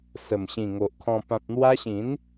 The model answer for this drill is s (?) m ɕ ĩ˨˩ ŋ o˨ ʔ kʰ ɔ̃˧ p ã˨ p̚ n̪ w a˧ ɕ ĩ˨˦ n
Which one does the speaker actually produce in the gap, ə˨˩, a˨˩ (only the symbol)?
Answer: ə˨˩